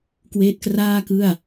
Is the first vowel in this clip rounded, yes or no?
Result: no